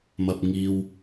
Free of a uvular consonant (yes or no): yes